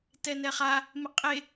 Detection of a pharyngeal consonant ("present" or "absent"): absent